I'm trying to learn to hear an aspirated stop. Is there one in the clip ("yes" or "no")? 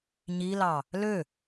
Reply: no